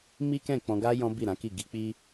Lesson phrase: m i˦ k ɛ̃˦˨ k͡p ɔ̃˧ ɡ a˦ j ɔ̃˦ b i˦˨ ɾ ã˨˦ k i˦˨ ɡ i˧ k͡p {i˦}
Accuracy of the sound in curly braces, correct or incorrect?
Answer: correct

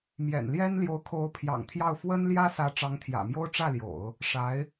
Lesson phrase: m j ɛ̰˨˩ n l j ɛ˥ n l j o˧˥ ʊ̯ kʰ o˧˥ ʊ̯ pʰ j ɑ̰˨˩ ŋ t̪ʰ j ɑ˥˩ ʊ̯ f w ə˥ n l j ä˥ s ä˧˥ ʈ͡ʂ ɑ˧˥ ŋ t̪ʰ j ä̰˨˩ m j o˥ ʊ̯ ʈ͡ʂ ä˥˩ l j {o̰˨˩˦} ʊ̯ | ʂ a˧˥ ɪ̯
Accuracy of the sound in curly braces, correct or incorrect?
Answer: correct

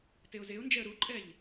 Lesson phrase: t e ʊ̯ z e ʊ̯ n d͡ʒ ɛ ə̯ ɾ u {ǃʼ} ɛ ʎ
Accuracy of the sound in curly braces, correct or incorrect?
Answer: correct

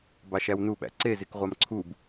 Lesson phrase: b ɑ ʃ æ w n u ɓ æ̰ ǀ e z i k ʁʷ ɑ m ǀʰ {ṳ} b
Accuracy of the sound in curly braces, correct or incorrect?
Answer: incorrect: u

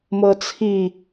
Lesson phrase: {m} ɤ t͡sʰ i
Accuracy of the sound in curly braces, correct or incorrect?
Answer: correct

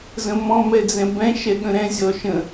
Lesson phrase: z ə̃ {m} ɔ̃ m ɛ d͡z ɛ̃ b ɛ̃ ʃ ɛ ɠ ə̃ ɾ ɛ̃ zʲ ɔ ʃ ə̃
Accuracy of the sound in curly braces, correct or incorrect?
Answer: correct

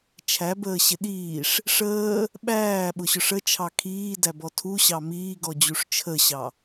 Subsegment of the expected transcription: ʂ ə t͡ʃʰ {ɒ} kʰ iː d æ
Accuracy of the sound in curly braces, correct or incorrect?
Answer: incorrect: ɑ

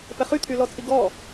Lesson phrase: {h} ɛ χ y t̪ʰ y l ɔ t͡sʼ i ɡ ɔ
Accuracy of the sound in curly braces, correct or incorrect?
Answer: incorrect: p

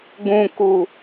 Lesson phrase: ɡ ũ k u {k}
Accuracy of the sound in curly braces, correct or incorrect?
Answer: incorrect: none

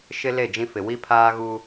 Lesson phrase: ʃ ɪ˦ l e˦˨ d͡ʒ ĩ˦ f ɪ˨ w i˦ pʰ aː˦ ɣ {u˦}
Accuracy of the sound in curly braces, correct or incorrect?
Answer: correct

